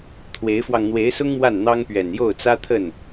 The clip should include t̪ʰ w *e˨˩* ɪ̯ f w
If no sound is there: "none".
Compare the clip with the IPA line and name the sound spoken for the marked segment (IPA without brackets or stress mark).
e˧˥